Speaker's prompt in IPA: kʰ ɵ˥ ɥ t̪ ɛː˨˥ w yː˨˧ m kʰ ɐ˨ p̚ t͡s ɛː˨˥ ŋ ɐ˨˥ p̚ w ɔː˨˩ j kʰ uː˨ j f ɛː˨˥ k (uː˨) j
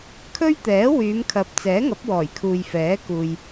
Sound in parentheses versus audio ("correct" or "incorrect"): correct